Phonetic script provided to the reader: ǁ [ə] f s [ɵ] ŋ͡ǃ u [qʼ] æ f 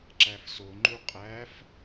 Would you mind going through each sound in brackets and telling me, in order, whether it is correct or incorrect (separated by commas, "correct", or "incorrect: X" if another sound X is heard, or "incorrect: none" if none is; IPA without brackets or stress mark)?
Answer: incorrect: æ, incorrect: o, correct